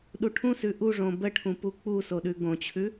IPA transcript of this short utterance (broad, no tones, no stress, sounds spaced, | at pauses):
ɗ u ʈʰ ũ s ʉ ʔ u ʐ õ b ə ʈʰ ũ p u k͡p u s o ɗ ʉ ɡ õ t͡ɕʰ ʉ